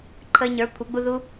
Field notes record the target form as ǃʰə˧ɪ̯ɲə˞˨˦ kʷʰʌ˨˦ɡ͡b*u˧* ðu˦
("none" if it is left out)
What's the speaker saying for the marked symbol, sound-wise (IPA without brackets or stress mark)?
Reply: u˧